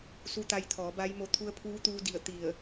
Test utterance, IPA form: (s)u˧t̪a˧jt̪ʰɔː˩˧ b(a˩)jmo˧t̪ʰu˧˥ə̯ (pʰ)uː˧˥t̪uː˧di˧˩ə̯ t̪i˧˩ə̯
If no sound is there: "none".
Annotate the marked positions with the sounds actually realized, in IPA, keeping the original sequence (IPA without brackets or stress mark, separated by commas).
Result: s, a˧˥, pʰ